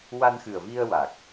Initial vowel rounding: unrounded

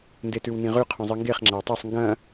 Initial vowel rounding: unrounded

